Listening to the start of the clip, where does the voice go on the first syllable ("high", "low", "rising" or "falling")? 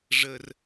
high